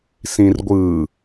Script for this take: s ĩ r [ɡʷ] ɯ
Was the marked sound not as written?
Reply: no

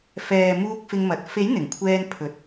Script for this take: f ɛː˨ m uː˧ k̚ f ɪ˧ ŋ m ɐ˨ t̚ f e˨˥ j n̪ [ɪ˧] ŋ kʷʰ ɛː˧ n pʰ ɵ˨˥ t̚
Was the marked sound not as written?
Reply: yes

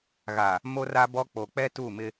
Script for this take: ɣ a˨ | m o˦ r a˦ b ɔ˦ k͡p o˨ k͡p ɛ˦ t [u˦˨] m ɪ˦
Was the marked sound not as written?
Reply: no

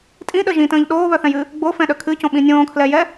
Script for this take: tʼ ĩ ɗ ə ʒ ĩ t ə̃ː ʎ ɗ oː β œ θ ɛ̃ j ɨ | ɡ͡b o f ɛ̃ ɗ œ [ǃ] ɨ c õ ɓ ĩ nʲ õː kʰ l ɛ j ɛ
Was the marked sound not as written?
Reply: yes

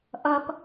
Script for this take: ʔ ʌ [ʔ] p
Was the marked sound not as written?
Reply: yes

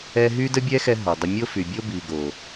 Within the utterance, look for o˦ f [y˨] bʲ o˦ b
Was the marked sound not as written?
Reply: no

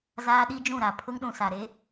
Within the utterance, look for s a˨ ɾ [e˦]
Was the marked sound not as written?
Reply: no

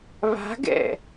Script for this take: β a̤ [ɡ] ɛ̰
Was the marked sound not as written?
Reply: no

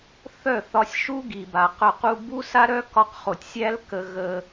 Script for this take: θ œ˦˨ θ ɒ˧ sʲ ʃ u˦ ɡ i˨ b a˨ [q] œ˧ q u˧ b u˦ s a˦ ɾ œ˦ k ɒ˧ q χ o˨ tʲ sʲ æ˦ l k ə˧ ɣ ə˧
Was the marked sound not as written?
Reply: no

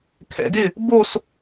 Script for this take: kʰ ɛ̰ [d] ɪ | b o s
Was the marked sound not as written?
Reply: no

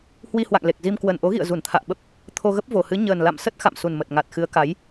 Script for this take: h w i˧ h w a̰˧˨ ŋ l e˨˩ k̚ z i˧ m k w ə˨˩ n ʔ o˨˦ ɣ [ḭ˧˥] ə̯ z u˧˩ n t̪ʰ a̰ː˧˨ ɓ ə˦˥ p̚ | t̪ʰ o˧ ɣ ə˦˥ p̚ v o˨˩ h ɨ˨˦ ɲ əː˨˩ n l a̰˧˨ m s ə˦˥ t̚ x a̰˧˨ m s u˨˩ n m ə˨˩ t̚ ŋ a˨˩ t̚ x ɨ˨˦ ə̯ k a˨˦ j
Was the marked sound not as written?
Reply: yes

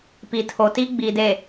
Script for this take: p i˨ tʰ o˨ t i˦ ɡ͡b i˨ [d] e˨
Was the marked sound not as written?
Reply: no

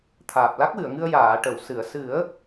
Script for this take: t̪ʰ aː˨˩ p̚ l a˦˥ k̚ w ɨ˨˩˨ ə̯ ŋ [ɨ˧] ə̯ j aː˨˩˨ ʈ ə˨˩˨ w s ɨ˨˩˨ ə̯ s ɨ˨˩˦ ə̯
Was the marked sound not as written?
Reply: no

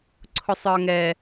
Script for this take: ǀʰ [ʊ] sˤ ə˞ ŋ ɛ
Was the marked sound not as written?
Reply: no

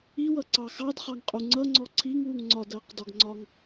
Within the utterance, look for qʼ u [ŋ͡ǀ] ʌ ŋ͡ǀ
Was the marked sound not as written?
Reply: no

